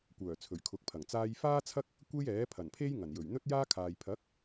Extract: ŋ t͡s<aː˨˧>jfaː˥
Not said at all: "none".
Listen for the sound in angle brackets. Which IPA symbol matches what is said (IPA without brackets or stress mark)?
aː˧